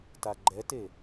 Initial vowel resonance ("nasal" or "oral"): oral